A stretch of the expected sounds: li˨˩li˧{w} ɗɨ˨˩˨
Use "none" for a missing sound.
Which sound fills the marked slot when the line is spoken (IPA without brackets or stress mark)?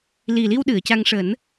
w